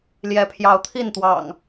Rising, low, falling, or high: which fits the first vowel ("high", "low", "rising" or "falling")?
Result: rising